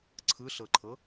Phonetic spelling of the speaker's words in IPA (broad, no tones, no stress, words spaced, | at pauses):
ǀʰɯɬɤǃʰɤ